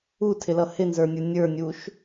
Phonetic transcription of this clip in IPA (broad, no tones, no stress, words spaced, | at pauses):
utʰɪlʌ hɪnzə˞nʲə˞ nʲə˞nʲuʃ